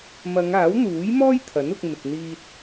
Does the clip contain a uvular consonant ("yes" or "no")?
no